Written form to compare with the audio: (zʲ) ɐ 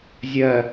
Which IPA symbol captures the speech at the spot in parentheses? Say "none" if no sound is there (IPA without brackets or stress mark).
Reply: zʲ